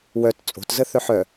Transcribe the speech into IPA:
w œ t t͡sʼ o̤ t z ə θ œ ħ œ

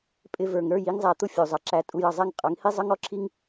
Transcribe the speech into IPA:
pʼ ɪ˧ v ə˞˨ ŋ ɾ ə˞˦˨ j i˦ ŋ zˤ æ˧ t̪ ʊ˦ fʲ u˨ zˤ ʌ˨ ǁ æ˧ tʼ u˧ j ʌ˨ zˤ ɛ˧ ŋ qʼ ʌ˨˦ ŋ h i˦ zˤ ʌ˦ ŋ ɔ˦ ǁʰ i˦ ŋ

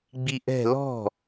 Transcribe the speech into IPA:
ɡ͡b i ʔ ɛ̤ l ɔ̤

